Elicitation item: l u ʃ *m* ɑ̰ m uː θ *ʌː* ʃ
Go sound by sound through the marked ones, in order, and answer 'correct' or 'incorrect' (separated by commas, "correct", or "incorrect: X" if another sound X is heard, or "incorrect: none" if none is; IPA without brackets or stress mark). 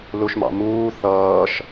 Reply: correct, correct